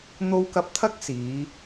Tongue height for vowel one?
mid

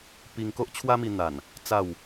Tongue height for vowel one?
high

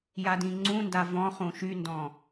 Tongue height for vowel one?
low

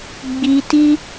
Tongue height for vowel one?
high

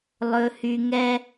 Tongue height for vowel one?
mid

